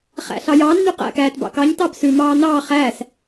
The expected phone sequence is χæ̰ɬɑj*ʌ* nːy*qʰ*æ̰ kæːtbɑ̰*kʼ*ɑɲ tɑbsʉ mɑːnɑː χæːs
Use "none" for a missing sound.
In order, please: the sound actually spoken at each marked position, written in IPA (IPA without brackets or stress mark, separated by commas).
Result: ɑ, q, k